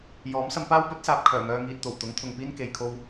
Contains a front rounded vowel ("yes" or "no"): yes